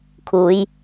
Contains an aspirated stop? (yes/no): yes